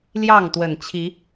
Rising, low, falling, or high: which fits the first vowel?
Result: falling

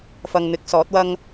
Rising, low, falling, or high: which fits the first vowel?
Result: low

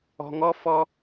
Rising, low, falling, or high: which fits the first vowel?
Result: low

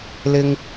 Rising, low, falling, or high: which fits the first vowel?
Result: high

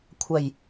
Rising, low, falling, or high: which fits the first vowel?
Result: low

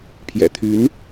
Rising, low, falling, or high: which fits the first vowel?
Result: low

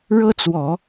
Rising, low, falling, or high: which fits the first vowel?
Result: high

